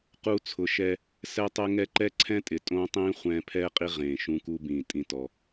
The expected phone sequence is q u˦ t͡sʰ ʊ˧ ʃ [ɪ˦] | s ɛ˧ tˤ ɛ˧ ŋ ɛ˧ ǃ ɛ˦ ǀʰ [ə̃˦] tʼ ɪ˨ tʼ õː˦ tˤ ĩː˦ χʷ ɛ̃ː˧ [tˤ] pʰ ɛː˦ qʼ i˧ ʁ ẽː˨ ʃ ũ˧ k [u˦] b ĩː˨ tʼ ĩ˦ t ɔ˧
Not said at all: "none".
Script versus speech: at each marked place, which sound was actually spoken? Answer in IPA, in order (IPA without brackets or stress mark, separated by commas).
ɛ˦, ɛ̃˦, none, u˦